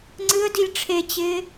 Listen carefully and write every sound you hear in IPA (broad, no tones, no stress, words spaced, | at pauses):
ŋ͡ǀɨə̯dilʲ ʈ͡ʂʰet͡ɕɪː